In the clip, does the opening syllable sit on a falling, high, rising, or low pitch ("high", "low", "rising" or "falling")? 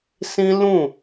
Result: high